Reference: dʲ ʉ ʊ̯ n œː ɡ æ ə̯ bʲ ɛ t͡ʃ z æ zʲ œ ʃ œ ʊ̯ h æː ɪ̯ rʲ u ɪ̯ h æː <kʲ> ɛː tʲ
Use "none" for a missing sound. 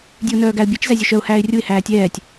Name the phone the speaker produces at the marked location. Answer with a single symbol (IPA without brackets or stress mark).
tʲ